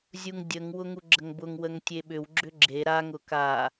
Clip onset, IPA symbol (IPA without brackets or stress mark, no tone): zʲ